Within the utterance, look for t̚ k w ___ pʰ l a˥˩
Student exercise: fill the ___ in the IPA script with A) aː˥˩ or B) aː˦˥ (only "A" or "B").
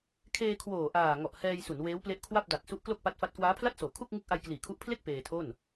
B